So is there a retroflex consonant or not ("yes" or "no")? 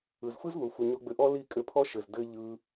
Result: no